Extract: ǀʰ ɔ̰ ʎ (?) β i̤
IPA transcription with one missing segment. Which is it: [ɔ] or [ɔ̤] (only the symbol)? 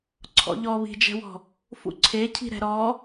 ɔ